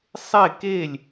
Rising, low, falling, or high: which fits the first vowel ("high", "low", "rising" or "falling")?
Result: falling